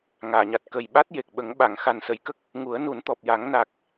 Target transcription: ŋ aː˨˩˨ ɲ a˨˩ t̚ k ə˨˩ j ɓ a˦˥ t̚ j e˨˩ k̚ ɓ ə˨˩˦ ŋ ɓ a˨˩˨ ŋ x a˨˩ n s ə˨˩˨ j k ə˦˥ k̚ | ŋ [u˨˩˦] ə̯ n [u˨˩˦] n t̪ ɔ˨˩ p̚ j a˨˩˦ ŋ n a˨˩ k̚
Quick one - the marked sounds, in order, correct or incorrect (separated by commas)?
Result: correct, correct